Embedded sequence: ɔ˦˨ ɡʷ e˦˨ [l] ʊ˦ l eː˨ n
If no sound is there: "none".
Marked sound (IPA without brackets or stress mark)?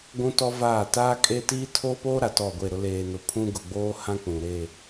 ɾ